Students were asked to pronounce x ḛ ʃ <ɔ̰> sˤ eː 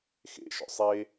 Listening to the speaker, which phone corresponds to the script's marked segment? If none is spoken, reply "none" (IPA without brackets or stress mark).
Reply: ɔ̰